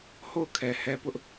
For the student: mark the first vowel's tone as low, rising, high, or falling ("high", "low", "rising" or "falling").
falling